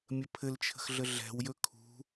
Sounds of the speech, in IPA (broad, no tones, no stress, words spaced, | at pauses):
mʲəpʰɘlt͡ʃʰə̤x ɮəɮɛ̤wjɵ kʰṳ